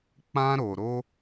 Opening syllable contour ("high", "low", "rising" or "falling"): high